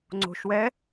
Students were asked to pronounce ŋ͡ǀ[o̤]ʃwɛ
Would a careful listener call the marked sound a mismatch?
no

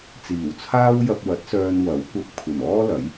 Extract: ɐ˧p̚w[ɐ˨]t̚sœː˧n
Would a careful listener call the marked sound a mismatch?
yes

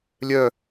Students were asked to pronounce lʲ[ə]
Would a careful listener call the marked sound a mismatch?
yes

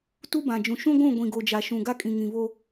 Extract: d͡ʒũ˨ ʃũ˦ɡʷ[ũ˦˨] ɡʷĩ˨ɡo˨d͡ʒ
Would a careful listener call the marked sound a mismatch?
no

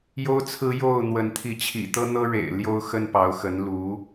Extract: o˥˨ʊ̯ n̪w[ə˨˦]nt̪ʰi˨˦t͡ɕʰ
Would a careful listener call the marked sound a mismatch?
no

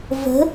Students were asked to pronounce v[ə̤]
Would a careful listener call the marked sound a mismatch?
no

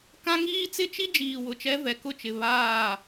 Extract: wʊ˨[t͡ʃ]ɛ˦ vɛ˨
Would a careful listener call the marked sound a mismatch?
no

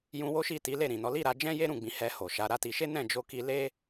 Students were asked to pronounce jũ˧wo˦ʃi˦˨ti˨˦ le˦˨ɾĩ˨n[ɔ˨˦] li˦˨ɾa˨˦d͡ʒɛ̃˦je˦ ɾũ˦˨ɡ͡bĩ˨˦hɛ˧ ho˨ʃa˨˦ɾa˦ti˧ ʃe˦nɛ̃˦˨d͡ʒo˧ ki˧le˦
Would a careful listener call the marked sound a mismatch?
no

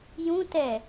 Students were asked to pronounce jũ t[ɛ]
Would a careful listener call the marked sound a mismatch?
no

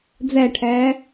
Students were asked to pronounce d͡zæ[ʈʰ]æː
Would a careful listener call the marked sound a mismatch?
no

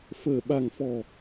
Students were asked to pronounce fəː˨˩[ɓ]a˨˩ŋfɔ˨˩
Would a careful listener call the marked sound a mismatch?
no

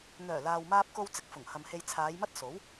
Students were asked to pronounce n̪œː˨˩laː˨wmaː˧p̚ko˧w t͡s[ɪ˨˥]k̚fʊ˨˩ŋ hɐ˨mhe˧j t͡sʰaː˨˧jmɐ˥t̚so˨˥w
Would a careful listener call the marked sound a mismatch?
yes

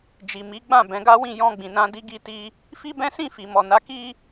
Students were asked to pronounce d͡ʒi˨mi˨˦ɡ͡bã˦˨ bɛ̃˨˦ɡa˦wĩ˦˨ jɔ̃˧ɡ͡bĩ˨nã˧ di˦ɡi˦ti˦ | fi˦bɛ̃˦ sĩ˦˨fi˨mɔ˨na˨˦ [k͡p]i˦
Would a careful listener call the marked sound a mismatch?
yes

